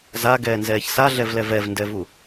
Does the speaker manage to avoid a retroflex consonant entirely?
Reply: yes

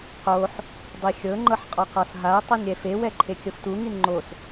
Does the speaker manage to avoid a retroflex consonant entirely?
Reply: yes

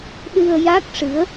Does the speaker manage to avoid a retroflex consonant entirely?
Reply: no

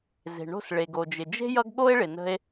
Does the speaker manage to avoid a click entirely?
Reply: yes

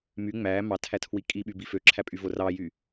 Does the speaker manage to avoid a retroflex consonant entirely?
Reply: yes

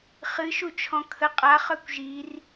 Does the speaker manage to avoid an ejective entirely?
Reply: no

